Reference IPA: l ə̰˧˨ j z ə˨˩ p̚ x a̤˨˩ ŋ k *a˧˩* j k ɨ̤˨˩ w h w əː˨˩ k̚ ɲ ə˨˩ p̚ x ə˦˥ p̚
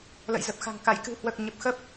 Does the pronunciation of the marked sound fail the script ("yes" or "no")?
no